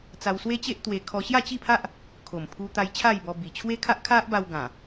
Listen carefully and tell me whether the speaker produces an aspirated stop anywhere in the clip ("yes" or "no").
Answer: yes